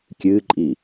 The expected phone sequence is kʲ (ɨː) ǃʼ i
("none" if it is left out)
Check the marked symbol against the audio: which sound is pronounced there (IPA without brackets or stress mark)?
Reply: ɨː